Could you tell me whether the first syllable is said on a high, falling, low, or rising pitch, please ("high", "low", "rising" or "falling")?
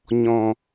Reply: low